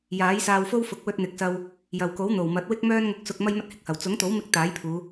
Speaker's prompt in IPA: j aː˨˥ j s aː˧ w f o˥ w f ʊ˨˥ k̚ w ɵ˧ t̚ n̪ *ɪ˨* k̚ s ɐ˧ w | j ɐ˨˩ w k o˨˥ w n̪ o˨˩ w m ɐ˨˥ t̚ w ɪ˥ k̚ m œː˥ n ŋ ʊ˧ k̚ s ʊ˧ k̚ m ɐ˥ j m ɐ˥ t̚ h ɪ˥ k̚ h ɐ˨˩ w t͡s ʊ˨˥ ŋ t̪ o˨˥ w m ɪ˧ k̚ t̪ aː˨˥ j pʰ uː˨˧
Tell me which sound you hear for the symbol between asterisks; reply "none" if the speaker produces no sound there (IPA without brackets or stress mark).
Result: ɪ˨